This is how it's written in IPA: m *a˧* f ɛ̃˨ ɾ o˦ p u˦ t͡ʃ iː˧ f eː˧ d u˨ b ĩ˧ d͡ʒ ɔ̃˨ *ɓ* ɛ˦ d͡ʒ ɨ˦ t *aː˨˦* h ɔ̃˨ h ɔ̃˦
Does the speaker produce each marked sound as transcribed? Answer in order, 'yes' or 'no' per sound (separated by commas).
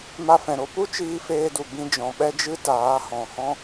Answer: yes, yes, yes